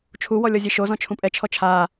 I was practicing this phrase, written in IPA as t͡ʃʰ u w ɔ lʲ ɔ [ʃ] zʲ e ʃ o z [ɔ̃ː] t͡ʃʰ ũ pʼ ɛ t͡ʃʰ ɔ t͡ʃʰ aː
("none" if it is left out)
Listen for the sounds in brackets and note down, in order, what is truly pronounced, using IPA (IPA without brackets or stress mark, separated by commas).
none, ɔ̃